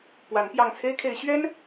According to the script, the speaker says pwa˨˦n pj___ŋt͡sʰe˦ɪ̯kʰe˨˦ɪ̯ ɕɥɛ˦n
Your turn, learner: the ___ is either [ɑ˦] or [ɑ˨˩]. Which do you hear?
ɑ˨˩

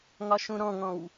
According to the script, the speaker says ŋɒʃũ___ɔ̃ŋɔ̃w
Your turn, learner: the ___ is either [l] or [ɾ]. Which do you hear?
ɾ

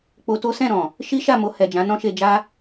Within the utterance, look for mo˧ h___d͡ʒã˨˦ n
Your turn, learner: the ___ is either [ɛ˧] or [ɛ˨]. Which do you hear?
ɛ˨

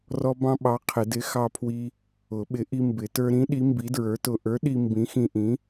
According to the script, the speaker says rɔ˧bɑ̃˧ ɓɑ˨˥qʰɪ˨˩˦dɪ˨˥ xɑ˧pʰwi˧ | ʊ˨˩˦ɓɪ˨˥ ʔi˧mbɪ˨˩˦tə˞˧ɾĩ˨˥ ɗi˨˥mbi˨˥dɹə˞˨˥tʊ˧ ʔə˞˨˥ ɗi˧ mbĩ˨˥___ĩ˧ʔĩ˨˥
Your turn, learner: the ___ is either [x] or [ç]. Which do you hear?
x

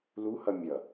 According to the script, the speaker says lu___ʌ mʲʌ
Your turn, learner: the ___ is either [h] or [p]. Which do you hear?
h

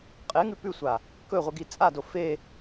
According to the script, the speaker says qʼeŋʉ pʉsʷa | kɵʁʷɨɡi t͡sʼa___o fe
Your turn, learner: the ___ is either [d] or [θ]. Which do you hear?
d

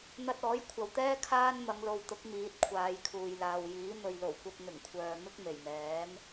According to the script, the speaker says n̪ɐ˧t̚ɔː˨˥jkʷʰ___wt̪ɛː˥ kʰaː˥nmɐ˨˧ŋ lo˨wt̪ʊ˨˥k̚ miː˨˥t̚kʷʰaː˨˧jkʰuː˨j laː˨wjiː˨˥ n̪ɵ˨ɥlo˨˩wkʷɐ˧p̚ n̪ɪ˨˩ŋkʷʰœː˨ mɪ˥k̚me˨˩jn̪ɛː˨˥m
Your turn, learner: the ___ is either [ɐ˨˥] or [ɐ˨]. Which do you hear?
ɐ˨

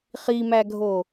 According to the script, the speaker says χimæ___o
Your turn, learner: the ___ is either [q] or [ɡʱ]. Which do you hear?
ɡʱ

